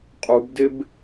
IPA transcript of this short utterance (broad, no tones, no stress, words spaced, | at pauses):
qʼubdɪb